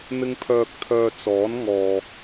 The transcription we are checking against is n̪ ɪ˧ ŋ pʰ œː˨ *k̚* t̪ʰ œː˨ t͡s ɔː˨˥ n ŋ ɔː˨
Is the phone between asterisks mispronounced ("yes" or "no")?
no